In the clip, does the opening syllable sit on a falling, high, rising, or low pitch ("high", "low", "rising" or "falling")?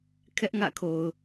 high